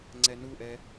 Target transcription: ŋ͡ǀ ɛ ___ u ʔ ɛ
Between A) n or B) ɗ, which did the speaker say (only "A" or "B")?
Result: A